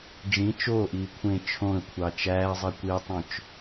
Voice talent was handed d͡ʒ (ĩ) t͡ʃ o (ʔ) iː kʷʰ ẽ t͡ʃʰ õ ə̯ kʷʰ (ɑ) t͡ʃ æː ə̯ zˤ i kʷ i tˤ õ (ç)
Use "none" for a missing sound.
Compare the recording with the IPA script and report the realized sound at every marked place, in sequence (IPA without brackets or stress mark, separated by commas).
ĩ, ʔ, ɑ, t͡ʃ